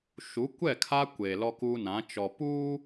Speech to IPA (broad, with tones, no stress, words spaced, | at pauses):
ʃu˨˦ kʷɛ˦˨kʰa˦kʷeː˨ lɔ˦ku˦nã˨˦ t͡ʃɔ˨ puː˦